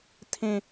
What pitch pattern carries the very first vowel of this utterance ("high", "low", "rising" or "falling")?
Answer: low